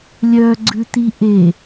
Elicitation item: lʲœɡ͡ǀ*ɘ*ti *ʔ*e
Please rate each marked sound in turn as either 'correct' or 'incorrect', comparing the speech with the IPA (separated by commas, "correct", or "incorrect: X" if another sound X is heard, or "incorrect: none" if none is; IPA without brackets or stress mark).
incorrect: ʉ, correct